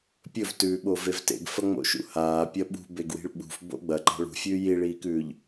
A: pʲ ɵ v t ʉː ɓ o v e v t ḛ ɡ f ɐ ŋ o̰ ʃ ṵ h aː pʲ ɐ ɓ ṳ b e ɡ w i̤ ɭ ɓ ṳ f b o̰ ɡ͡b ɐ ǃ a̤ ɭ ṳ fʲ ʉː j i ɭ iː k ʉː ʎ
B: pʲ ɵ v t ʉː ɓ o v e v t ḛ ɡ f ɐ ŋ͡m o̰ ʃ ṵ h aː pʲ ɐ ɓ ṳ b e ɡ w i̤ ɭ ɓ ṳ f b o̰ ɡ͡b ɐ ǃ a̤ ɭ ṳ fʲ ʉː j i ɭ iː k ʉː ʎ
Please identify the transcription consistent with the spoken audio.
B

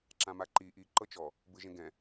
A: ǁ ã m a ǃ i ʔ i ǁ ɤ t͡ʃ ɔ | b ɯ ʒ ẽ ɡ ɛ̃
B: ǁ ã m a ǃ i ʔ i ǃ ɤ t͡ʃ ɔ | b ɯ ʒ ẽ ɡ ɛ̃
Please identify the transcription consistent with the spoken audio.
B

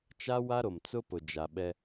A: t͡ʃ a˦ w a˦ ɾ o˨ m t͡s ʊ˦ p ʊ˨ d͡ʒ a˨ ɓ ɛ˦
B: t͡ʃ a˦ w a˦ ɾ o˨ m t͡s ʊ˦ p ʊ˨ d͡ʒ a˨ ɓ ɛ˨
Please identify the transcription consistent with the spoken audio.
A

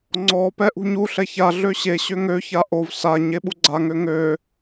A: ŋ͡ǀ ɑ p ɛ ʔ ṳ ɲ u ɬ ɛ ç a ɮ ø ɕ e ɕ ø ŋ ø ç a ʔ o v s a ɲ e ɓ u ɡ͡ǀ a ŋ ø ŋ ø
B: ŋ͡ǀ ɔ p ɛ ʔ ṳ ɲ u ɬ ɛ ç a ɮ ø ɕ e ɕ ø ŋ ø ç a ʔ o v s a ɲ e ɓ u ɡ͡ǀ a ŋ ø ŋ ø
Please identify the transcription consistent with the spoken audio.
B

